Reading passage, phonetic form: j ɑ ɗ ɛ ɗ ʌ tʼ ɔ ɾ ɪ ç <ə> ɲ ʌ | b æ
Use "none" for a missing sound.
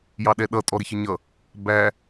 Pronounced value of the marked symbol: ə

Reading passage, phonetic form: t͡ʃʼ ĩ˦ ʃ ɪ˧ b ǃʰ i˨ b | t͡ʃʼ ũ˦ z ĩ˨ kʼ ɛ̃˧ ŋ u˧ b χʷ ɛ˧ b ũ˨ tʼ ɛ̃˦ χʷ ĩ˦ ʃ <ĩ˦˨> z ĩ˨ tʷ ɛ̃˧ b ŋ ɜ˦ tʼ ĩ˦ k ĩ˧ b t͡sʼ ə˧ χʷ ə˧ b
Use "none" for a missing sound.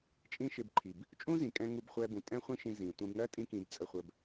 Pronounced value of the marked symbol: ĩ˧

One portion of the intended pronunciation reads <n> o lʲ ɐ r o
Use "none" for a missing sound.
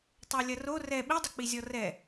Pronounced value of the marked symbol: tˤ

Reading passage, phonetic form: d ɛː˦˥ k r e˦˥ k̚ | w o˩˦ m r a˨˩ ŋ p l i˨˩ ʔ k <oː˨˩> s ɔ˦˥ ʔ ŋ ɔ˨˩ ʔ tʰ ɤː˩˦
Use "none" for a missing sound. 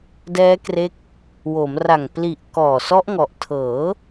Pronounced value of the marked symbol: ɔː˨˩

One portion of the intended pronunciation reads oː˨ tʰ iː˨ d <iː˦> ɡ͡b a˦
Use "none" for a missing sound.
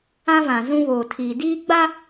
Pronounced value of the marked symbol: iː˦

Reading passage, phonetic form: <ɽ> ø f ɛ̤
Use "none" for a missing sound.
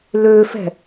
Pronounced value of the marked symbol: l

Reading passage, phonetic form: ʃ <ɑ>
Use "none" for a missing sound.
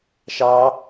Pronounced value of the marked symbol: ɑ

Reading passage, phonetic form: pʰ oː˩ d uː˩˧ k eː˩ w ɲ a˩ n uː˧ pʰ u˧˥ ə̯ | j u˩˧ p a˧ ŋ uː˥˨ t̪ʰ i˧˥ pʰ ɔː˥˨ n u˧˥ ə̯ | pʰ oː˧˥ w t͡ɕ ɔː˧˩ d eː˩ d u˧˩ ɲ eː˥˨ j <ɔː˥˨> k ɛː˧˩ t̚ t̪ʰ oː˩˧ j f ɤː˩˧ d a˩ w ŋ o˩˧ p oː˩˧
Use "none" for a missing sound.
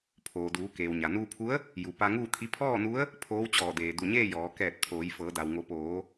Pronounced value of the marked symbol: ɔː˩˧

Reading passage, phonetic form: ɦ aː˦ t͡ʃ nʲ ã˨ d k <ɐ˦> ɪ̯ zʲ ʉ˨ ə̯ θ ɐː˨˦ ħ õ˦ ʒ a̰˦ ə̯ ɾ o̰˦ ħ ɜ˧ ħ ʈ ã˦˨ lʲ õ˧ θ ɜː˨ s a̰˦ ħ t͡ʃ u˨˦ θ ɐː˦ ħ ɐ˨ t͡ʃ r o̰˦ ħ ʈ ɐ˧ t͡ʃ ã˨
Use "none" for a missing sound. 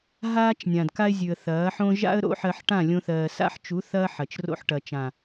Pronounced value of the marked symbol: a˦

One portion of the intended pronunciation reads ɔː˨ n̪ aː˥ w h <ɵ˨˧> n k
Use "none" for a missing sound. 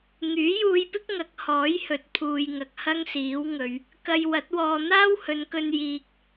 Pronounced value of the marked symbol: ɵ˨˧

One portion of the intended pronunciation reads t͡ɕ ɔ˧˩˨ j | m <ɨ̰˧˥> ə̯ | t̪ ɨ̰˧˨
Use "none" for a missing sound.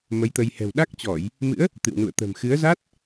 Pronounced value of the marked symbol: ɨ̰˧˥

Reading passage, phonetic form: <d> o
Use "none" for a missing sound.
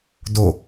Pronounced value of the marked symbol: d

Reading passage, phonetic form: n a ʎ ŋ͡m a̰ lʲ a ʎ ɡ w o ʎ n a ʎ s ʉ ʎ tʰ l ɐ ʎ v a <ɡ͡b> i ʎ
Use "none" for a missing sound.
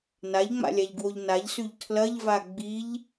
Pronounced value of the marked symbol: ɡ͡b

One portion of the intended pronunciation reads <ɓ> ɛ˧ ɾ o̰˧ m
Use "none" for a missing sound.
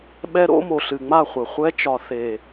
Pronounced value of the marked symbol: ɓ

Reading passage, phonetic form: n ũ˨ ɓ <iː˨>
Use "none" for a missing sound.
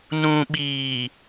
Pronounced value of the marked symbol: iː˨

